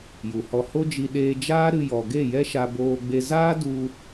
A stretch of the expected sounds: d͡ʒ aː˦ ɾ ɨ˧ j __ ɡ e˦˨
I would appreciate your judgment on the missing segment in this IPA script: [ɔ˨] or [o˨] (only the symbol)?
ɔ˨